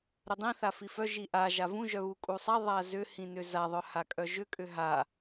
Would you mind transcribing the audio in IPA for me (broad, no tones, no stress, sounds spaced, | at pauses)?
ɾ ʏ dˤ ĩ θ a f i f œ ʒ i ʔ a ʒ a v ũ ʒ œ β u kʼ u sˤ a ðˤ a z ʏ h ĩ n ʏ z a ðˤ œ h a kʼ œ ʒ ʏ kʼ ʏ ɦ a